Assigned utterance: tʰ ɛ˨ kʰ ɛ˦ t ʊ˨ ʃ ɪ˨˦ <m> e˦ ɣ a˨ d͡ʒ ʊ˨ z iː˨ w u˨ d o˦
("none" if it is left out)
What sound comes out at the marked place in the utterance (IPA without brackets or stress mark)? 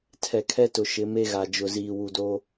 m